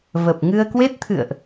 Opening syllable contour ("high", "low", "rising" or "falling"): low